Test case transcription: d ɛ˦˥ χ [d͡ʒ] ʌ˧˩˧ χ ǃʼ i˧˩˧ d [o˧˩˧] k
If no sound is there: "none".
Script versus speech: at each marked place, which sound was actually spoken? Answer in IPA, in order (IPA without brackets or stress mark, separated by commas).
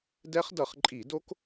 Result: d, o˦˥